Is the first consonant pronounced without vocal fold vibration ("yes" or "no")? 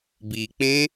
no